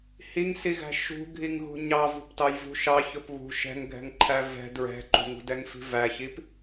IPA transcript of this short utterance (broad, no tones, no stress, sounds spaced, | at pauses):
h i ŋ s i ɣ æ̤ ʃ ṳ ɡʱ i ŋ ɣ ṳ ɲ ɑ v ṳ p t ɑ j v ṳ ʃ ɑ ç ʊ p β ṳ ʃ ɛ̤ ŋ ɡʱ ɛ̤ ŋ ǃʰ æ v ɛ̤ d ɹ ɛ̤ ǃ ṳ ŋ ṳ d ɛ ŋ f i̤ v æ ç i p